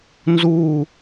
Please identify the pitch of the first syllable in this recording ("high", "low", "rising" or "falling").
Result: falling